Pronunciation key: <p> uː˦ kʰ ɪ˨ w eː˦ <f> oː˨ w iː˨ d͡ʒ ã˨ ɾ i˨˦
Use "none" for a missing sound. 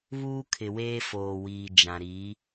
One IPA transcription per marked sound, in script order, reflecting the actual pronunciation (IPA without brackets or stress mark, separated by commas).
β, f